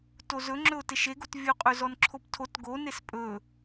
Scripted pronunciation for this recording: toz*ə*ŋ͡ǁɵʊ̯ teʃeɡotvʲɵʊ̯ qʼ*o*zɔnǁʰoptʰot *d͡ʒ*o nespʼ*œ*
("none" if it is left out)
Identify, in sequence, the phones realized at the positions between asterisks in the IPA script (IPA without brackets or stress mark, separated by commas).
ɵ, ɵ, ɡ, ɵ